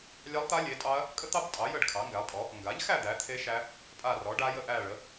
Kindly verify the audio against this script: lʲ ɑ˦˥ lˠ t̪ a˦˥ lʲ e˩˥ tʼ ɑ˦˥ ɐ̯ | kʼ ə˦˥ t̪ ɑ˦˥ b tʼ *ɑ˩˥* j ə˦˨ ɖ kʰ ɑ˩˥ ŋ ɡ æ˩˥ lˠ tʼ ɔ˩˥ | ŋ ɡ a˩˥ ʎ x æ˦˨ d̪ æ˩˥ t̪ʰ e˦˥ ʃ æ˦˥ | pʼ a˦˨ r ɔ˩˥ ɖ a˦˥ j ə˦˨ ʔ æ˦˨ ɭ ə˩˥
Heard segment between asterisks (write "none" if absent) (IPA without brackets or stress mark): ɑ˩˥